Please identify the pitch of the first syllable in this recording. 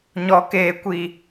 low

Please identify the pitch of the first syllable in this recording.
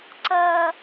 high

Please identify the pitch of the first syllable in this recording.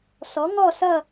rising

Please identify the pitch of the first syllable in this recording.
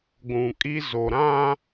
low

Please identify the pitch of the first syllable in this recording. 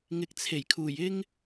low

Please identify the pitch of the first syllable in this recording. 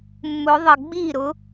rising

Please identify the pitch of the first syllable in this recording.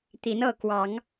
rising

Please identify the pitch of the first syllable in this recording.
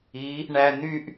rising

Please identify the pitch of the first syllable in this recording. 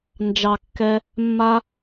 low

